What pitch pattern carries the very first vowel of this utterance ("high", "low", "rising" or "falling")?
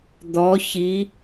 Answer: rising